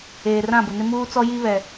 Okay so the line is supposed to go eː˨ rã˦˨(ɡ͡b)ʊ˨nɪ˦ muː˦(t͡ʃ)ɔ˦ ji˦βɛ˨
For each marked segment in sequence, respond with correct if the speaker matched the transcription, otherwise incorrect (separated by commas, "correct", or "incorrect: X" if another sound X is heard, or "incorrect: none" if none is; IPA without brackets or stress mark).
incorrect: b, incorrect: t͡s